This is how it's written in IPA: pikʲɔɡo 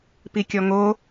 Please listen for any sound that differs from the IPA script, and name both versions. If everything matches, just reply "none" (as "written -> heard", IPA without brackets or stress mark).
ɡ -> ŋ